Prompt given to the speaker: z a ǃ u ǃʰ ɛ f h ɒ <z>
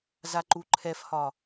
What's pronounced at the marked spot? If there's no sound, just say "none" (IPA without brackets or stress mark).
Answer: none